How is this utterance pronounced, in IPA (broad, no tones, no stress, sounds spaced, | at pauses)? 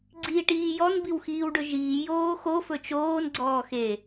ɡ͡ǀ iː ʈ iː j ɔ n b i w x iː w ɖ ɵ ʒ iː j oː x o f ɵ t͡ʃ oː n ɡ͡ǀ ɔː x e